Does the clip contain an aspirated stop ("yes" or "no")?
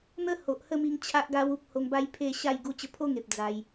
yes